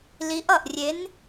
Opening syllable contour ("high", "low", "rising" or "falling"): rising